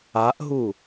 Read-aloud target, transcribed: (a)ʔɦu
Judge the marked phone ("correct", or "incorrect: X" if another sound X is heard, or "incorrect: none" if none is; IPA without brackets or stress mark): correct